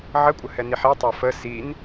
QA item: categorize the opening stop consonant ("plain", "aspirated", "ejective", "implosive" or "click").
ejective